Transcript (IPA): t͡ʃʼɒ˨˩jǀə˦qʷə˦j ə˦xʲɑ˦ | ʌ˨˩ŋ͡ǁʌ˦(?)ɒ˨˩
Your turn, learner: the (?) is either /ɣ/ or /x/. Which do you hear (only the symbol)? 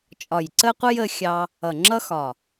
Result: x